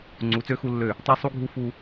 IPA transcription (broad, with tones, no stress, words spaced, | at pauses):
ŋ͡ǀu˨˦t͡sø˦ xu˦lːø˦˨ | tˤɛ˦sˤu˦ ɡʱu˦fu˦